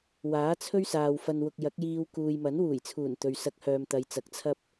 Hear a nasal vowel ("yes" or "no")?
no